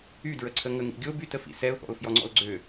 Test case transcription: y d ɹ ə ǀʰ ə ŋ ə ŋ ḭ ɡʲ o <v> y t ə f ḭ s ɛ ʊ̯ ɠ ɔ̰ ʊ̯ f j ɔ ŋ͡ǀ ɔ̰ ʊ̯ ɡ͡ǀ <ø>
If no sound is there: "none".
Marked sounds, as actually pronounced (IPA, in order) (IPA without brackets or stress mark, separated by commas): b, ø